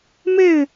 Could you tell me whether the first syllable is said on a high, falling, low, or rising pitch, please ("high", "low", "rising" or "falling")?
falling